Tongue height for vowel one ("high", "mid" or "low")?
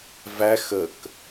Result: low